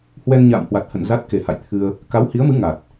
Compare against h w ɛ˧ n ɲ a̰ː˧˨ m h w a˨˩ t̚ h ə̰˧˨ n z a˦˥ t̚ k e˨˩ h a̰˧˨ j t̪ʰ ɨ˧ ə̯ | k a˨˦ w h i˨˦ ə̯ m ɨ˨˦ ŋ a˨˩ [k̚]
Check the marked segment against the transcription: incorrect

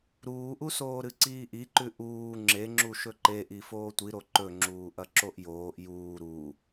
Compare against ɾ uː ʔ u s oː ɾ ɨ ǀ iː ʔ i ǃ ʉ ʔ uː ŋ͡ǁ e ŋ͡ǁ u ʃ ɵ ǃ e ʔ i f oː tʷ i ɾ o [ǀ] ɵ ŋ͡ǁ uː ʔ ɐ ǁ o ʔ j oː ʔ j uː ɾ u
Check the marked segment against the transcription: incorrect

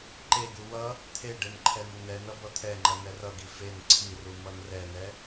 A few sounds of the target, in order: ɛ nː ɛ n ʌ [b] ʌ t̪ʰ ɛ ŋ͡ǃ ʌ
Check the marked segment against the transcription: correct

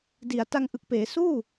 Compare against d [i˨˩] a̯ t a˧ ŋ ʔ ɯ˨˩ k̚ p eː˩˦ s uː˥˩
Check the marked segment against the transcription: correct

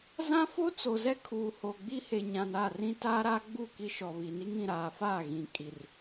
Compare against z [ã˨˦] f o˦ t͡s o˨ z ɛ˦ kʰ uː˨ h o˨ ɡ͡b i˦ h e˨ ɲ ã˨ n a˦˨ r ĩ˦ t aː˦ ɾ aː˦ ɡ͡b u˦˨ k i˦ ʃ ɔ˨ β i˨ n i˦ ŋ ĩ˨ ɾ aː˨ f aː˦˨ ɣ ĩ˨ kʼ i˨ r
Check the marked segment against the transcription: incorrect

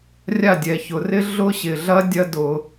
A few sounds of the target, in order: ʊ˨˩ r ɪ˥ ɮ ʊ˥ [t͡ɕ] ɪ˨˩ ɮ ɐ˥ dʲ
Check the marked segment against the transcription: incorrect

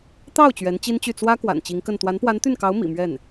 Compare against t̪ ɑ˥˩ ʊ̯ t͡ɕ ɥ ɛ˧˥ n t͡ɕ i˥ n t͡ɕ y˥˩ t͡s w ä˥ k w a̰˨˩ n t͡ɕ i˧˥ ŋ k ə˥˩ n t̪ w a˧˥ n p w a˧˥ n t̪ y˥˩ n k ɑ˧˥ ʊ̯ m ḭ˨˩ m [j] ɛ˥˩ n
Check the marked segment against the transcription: incorrect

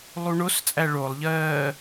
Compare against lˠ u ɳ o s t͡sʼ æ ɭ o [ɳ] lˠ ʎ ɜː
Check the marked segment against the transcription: incorrect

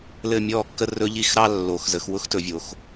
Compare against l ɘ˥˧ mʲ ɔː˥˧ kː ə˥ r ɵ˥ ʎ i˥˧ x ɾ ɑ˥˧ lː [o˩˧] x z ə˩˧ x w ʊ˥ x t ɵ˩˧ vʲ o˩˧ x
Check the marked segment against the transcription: correct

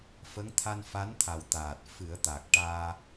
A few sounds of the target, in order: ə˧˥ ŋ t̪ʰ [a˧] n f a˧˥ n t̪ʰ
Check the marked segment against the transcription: correct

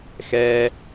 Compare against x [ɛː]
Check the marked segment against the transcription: correct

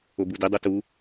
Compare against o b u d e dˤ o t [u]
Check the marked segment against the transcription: correct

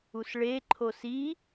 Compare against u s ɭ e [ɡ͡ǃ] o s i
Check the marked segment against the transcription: incorrect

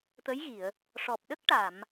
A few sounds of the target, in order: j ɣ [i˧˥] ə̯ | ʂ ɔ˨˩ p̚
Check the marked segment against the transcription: incorrect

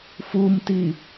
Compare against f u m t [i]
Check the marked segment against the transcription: correct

